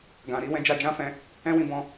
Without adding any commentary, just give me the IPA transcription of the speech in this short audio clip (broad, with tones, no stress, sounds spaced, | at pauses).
ɡ ã˨ ɾ i˨˦ w ɛ̃˧ d͡ʒ a˧ d͡ʒ ã˦ f ɛ̃˧ | ɛ̃˦ w ĩ˧ b ɔ̃˧